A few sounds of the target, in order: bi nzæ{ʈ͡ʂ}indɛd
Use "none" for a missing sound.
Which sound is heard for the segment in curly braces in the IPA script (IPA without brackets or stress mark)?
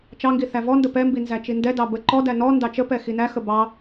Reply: t͡ʃ